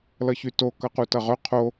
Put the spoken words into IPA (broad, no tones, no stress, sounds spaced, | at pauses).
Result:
l ʌ ç y t o k ʌ q u t ʌ ʁ œ qʰ o